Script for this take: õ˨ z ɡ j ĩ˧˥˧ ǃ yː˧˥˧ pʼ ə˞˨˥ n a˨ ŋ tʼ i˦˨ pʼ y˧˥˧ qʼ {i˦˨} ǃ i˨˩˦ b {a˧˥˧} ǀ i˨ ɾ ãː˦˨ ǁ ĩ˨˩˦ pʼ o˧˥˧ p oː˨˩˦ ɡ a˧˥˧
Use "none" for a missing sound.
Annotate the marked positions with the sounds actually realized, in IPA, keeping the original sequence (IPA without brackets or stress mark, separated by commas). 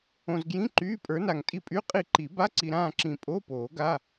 i˦˨, a˧˥˧